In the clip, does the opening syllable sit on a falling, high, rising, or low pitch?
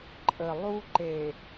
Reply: low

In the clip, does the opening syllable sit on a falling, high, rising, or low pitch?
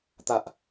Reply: low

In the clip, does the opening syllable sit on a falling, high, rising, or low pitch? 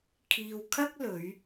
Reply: low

